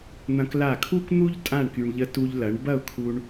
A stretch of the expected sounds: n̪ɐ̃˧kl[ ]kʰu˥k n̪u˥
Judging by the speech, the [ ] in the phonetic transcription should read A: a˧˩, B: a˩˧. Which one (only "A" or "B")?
A